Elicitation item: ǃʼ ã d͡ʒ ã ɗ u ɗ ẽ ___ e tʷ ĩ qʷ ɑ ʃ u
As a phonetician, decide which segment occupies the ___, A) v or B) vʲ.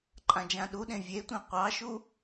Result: B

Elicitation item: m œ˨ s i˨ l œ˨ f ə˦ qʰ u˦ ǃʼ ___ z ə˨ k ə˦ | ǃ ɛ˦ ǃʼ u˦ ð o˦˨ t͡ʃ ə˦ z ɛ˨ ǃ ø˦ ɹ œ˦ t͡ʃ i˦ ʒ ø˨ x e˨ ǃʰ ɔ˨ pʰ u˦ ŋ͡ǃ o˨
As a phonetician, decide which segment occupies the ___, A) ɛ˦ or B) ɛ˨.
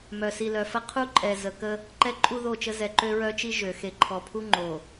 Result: B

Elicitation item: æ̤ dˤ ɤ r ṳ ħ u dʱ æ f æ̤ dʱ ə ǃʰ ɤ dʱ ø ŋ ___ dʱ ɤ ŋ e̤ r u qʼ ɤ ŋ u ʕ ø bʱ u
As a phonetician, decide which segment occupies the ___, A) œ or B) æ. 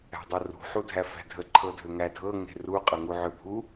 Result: B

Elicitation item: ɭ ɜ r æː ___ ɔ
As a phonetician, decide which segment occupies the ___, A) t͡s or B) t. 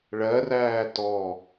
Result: B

